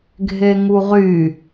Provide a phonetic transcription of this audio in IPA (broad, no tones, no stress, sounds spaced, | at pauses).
ɡʱ e ŋ u ʁ y